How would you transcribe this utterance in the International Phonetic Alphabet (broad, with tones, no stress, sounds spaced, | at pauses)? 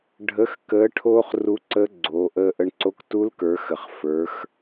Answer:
ɖʱ ə˧˥ x k əː˧˥ ʈʰ oː˥ χ r u˧˥ ǀ ə˧˥ ɡ͡ǀ oː˩˧ ʔ əː˧ ʔ ə˧ ɳ ǀ o˧˥ k t u˧˥ l k ə˞˩˧ x ə˩ χ f ə˞˩˧ x